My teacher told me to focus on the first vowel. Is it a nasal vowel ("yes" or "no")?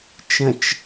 yes